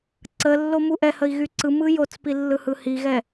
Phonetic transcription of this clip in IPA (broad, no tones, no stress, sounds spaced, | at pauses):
ǀ ə lː o m u ʔ ɛ h ə i̯ ɣ y ǀ ɯ m ɯ j o t͡s p i lː ɯ h ɯ h i ɣ ɛ